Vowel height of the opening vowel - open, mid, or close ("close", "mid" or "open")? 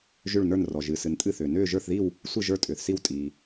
close